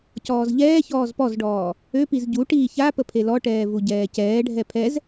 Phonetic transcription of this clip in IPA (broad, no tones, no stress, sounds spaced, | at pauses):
c ɔː z ʎ ɛː ç ɔː z p ɔ z ɖ ɔː | ø p i z ɟ u ʈ iː ç a p ə pʰ e l ɔ ʈ ɛː v u ɟ ɛː c ɛː ɖʱ ɛ pʰ ɛ z